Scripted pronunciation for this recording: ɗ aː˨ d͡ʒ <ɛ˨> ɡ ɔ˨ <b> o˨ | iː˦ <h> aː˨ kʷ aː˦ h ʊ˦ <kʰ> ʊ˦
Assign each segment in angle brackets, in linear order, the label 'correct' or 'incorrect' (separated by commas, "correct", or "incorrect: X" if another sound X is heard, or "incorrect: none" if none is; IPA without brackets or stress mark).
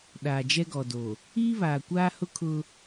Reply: incorrect: ɛ˦, incorrect: d, incorrect: β, correct